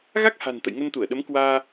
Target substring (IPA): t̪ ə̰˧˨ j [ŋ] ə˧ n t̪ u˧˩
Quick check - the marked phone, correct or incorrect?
correct